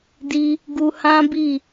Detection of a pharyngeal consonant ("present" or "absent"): absent